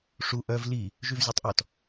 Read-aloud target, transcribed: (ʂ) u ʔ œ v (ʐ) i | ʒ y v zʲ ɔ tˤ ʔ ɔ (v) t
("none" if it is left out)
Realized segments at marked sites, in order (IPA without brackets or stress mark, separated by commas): ʂ, l, none